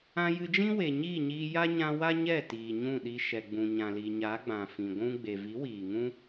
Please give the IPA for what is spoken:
ã˧jɨ˧d͡ʒĩ˦ we˨ɲiː˦˨ɲiː˧ja˦ ɲã˧ wa˦ɲɛ˦˨tiː˨ ɲũ˦˨ɗi˧ ʃɛ˨ɡ͡bũ˨ ɲã˨li˨ ɲa˨˦ɡ͡bã˨fĩ˨ ɡʷũ˧ ɡ͡be˨vi˨˦wiː˨ ŋũ˦

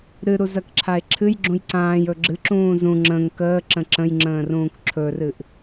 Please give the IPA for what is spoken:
ɾɨɾuzɜkǁʰae̯ ǁʰɨjɡ͡ǁũj ǀãːjɵ ɡ͡ǁɨǁũː zũ ŋ͡ǁə̃ŋ kəːǁə̃ ǁə̃jŋ͡ǁə̃ːrũːk ǁʰɵrɨʔ

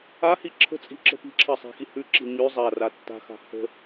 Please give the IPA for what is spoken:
ahi ǁʰə̤t͡sʼi̤ǁə̤ pi̤ǁʰɜsˤa̤xi hʉǁi̤ ɲʉ zˤara tːa̤xa̤ hə̤

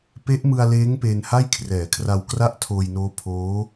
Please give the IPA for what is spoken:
pe˦˥ʔmɯ˧a̯leː˦˥ŋ peː˧nha˥˩jkʰrɛː˩˦kʰra˧w kra˥˩ʔtʰoː˧jnoː˦˥ pʰoː˦˥

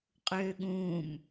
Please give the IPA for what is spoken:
qʼøːɠũːm

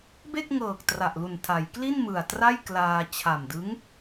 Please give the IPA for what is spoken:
be˥˩k̚ŋɤː˨˩k̚ tra˨˩ʔlu˨˩ntʰa˩˦jkli˥˩n mɯ˨˩a̯tra˥˩jklaː˧ t͡ɕʰa˨˩mdɯ˦˥ŋ

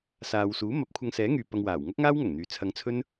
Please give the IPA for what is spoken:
saː˨wsuː˨˥ mɐ˨˥p̚ kʷʰɐ˧ŋsɛː˨˥ŋyː˨ pɐ˧ŋwaː˨˩w ŋɐ˥k̚ŋaː˥wŋɐ˨˩ŋn̪yː˨ t͡sʰɐ˧ŋt͡sʰɵ˥n

